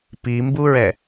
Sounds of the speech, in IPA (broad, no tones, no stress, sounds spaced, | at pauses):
p i m b u ɹ ɛ